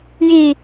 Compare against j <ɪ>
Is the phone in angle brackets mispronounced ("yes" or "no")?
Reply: yes